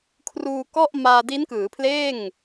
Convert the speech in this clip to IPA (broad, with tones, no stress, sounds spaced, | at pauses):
kʰ r uː˧ k ɔ˥˩ ʔ m aː˧ d i˦˥ n k ɯː˩˦ pʰ l eː˥˩ ŋ